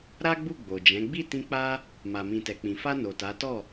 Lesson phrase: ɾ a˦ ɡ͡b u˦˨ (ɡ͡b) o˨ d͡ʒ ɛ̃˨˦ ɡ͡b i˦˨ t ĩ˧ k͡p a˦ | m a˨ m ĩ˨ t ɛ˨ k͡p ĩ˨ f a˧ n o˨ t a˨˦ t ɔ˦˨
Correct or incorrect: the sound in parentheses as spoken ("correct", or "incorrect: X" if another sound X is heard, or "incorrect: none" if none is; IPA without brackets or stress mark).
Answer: correct